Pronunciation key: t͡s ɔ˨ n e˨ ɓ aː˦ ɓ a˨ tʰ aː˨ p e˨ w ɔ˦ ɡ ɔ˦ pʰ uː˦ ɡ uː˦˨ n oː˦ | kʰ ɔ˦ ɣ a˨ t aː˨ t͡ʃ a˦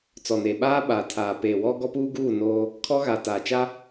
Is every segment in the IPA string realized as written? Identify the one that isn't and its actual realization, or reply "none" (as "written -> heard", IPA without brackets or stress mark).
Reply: pʰ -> p